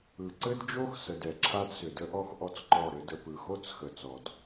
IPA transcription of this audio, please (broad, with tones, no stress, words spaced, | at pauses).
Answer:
ɯ˨ǀɘ˦d d͡ʒo˦xsə˨d ɛ˨ǁʰa˦dsʏ˨ də˦ʔɔ˦x ʔɔ˦t͡sǃɔ˦˨ɾɘ˦ də˨pɯ˨xo˦t͡s xə˨ t͡sɔ˨d